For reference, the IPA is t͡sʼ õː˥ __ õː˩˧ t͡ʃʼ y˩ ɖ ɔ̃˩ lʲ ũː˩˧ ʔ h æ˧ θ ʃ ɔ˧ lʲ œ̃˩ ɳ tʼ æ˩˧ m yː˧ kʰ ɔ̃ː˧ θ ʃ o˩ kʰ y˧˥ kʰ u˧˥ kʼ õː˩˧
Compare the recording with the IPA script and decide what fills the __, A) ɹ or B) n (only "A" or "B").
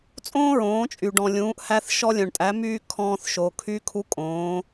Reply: A